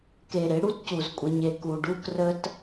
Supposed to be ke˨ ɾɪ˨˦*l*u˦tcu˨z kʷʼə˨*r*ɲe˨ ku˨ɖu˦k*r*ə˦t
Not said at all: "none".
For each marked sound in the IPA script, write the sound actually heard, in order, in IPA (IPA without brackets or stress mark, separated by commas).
ɽ, none, r